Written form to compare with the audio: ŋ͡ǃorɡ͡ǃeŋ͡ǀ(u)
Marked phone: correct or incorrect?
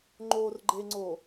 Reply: incorrect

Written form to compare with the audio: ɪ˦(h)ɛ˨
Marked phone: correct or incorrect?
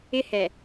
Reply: correct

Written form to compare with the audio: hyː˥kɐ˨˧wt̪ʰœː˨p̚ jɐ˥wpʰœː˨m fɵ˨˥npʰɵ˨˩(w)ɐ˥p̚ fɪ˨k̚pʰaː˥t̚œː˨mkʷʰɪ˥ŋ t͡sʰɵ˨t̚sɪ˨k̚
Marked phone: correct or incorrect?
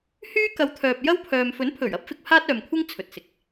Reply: incorrect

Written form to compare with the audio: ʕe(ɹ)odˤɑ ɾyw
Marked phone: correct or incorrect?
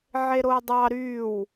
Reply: incorrect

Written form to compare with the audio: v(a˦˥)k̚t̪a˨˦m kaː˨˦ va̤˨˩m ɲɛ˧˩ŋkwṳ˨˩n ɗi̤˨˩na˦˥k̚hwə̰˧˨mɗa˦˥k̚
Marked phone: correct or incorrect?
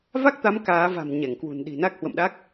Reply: correct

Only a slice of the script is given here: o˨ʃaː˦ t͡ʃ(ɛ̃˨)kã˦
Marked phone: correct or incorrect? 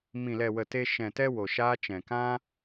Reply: correct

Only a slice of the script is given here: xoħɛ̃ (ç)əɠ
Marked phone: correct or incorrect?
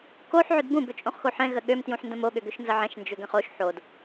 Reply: incorrect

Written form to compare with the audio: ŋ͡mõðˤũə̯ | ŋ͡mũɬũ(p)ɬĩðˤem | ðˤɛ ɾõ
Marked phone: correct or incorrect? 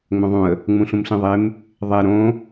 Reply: incorrect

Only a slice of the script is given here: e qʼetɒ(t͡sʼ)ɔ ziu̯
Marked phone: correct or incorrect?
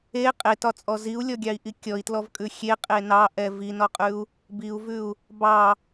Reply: correct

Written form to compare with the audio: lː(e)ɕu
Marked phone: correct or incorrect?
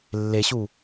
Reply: correct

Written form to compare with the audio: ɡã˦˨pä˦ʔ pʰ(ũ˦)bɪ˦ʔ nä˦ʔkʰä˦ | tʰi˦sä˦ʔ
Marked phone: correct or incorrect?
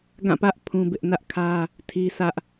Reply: correct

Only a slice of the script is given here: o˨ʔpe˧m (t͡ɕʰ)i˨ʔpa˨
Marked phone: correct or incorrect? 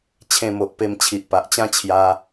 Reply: correct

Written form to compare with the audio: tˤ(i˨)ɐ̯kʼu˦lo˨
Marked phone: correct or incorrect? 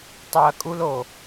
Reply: correct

